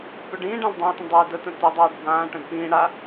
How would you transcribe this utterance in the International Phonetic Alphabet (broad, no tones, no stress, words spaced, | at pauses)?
pʉɖĩːɖãl dˤãʊ̯tə̃ dˤəɪ̯ dətə̃ tə dˤaːɖbʱãːʈə̃d pĩː ɽa